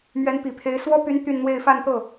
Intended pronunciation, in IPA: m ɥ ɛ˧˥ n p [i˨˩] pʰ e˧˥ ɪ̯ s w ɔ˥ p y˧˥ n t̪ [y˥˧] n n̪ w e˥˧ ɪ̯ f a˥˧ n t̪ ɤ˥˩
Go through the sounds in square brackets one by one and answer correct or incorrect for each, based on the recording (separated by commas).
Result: correct, correct